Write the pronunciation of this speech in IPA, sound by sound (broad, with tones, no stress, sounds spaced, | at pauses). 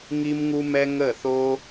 ŋ i˦ m ŋ u˦ m ɛ˦ ŋ ə˦˨ θ o˦